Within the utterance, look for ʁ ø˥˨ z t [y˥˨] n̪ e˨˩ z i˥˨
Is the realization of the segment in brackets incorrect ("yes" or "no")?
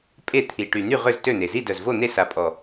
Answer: yes